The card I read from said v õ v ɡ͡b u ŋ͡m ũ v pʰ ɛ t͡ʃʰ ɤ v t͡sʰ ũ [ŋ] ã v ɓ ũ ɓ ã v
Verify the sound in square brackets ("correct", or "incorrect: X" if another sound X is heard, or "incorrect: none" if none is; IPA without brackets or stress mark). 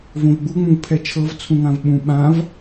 correct